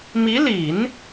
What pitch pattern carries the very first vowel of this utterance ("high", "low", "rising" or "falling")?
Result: rising